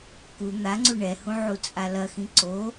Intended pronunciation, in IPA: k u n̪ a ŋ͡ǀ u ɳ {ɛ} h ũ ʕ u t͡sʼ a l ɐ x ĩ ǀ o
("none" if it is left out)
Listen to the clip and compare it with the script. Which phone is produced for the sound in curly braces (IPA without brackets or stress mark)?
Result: ɛ